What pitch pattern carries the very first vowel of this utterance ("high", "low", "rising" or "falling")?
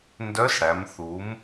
rising